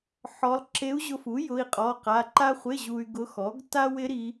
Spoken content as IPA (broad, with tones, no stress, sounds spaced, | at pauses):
ħ ɔ˧˥ lˠ ǁ e˧˥ u̯ ʑ ʊ˧ f u˩˥ j ʊ˧˥˧ i̯ qʼ ɔ˧˥˧ q a˧˥˧ ǃ a˥ χʷ ɪ˧˥˧ ʑ u˧ y̯ ɡ ʊ˧˥ x ɔ˩˥ ɡ t a˥ w ɪ˧˥ ɾ i˧˥